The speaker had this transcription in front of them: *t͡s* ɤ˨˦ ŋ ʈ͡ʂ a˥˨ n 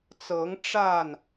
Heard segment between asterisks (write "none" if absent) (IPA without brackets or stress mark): t͡s